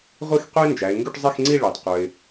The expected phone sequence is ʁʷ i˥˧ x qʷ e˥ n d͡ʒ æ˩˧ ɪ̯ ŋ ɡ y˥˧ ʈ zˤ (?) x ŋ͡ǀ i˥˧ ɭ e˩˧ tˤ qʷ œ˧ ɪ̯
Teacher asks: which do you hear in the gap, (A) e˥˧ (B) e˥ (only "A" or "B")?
A